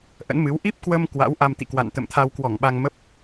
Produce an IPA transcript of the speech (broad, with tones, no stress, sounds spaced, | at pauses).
ʔ ə̰˧˥ n m ɨ˨˦ w ʔ i˦˥ p̚ k w ə˧ m k w a̰˧˥ w ʔ a˧ m t̪ ḭ˧˨ k w a̰˧˨ n t̪ ə̰˧˨ m t̪ʰ a˧ w k w ɔ˧˩ ŋ ɓ a˧ ŋ m ə˦˥ p̚